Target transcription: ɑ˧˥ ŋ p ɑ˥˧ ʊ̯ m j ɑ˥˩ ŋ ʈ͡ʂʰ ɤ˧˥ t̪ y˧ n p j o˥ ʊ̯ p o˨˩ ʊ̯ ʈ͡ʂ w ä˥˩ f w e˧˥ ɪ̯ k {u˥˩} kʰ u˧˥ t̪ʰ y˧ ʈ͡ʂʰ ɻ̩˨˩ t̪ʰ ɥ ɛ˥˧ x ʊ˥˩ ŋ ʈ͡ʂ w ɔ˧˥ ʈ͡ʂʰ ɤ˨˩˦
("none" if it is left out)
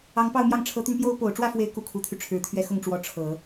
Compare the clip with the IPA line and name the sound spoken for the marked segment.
u˥˩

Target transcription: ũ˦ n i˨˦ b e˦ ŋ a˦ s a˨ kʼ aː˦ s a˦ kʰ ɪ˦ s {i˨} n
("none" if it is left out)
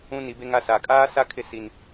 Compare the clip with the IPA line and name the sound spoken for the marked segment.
i˦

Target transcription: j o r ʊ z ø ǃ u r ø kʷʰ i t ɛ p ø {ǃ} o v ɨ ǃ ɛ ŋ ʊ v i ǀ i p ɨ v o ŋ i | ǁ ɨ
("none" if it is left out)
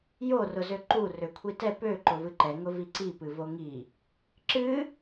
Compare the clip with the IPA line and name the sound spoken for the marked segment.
ǃ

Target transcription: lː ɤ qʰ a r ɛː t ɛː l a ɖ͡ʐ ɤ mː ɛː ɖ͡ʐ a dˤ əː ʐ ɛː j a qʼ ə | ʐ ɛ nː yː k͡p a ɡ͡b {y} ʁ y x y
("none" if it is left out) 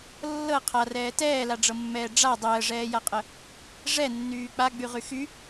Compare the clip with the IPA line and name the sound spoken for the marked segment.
y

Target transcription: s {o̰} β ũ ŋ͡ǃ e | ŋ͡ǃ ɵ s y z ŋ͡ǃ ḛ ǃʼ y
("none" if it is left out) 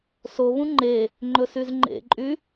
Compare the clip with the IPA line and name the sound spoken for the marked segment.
o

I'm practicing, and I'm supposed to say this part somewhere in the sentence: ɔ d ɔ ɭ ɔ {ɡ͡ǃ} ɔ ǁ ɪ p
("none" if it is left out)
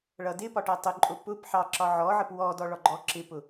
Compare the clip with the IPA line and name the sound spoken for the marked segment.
ɡ͡ǃ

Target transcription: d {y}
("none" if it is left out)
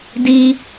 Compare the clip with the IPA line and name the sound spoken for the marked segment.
i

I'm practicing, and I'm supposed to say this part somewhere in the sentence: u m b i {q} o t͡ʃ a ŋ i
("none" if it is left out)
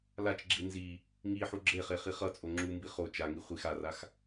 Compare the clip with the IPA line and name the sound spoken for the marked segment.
χ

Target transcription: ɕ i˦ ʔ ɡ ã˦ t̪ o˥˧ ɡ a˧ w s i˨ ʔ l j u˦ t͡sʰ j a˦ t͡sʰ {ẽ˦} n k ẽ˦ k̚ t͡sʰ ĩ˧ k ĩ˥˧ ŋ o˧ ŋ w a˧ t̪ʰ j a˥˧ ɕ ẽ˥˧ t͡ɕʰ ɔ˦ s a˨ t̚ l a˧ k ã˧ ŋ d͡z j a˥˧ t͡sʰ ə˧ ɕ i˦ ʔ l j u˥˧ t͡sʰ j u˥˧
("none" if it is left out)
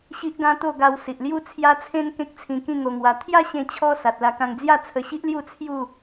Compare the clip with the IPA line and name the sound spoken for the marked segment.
ẽ˦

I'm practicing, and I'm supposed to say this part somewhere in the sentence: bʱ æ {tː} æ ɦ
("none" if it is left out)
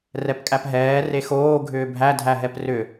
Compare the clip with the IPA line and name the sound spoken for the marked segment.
dʱ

